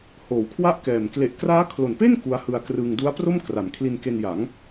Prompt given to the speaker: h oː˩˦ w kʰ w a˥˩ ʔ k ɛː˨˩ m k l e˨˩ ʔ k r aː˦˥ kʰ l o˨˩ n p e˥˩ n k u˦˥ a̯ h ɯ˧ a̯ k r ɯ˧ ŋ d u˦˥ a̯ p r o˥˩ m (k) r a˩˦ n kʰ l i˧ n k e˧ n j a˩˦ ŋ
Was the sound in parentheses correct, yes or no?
yes